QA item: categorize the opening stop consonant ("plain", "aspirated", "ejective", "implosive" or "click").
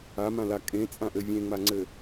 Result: ejective